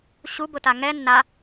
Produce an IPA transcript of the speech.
ɕubʊta ŋɛ nːa

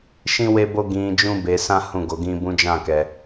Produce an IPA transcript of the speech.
ʃĩ˦ we˦bo˦ ɡĩ˧ d͡ʒũ˦be˧sã˦ hũ˦˨ɡo˨˦ɡĩ˦bũ˦ d͡ʒã˦˨kɛ˧

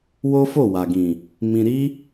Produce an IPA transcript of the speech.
wo˦fo˦˨wa˨ɡĩ˨ | mĩ˧ɾi˦

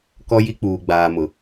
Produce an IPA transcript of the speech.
kɔ˦ji˦k͡puː˨ ɡ͡baː˨mʊ˨

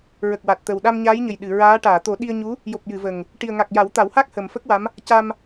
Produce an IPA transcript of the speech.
ɹə˨˩k̚wa˨˩t̚t̪ə˨˩w ɗa˧mɲaː˧˥jɲə˨˩j ɗɨ˨˩˨ɹaː˧˥ ʈaː˨˩˨t̪o˨˩˦ɗi˧ə̯ɲu˧˥ | jo˨˩p̚jɨ˨˩˨ və˨˩ŋ | ʈi˨˩ə̯ŋa˨˩k̚ ja˨˩˦wt̪a˨˩˦whaː˦˥k̚ həː˨˩mfə˦˥k̚wa˧˥m | ca˧m

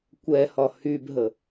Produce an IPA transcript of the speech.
kʷɛhɒ hybɦə

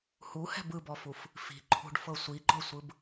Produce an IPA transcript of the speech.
huhɛ̤b ɯbɔfuf | fi̤ǃʰṳɖfɤ sʷiɡ͡ǃɔsʷɯb

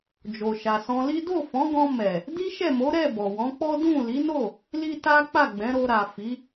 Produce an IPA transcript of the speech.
d͡ʒo˨ʃa˨sɔ̃˧li˦ do˦˨fɔ̃˨˦ɡɔ̃˧mɛ˨ | di˦ʃɛ˦˨mo˨˦ɾɛ˦˨ bɔ˨wɔ̃˨˦k͡pɔ˦ dũ˦˨ li˨˦no˦˨ | li˦ta˦ k͡pa˦˨ɡ͡bɛ̃˨˦ɾo˧ ɾa˨ fi˨˦

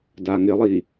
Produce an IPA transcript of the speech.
daŋɪlˠi

